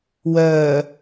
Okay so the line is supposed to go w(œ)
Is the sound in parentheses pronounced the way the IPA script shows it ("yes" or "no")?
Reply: no